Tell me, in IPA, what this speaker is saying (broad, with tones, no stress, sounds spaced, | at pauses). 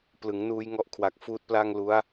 p l ɯ˩˦ ŋ n uː˧ j ŋ ɔ˦˥ ʔ kʰ w a˨˩ k̚ f uː˦˥ t̚ p l a˥˩ ŋ l u˦˥ a̯